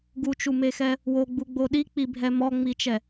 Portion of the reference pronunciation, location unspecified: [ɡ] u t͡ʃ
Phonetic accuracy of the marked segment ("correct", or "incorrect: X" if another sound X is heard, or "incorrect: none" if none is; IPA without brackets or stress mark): correct